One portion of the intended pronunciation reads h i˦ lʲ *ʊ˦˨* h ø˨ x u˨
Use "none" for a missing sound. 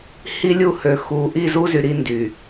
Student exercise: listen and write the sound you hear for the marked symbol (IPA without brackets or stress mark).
u˦˨